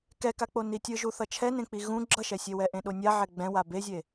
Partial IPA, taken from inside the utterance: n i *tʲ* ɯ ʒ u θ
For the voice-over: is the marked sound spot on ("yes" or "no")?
yes